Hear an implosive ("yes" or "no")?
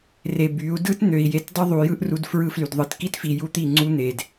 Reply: no